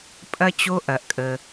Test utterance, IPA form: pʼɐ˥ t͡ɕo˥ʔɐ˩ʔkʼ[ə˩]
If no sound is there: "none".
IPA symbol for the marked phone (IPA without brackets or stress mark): ə˩